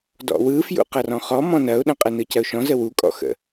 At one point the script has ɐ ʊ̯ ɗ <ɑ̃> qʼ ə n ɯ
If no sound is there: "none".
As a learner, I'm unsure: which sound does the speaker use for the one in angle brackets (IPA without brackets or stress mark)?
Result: ə̃